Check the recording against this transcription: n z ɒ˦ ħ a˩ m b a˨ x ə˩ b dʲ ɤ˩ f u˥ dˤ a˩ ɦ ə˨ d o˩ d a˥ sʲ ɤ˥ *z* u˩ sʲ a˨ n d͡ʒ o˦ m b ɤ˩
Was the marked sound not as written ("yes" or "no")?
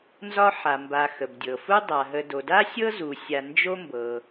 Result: no